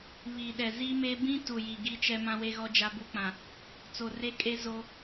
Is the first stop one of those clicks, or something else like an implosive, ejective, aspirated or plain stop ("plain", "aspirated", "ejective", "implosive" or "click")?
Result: implosive